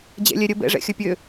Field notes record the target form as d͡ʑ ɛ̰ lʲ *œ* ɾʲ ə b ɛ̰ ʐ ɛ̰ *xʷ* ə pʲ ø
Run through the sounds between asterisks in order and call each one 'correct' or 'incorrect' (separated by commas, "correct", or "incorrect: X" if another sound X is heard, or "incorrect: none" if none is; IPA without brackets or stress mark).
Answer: incorrect: ɛ, incorrect: xʲ